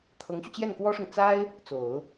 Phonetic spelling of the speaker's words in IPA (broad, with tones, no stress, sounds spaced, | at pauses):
t̪ʰ ɤ˧˥ ŋ ɕ y˧ t͡ɕ j ɛ˥˩ n k w ɔ˥ ʂ ʊ˨ ŋ t͡s a˥ ɪ̯ | t͡s o˨˩˦ ʊ̯